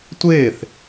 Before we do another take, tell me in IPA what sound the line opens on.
tʷ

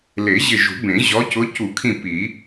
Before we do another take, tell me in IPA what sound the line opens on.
l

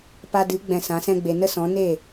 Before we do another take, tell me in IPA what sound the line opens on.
p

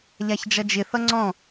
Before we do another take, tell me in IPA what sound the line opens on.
ʎ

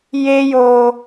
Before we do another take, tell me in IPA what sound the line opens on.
j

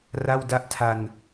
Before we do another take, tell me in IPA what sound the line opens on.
r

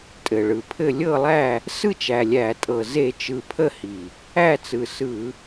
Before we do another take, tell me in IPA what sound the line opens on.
tʼ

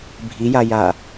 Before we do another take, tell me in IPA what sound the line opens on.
bʱ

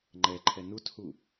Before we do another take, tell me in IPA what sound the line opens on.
ŋ͡ǃ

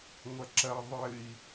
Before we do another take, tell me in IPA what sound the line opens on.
ŋʷ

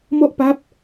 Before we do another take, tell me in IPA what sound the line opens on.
m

